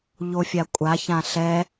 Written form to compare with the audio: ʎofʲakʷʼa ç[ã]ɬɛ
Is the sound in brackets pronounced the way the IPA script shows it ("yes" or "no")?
yes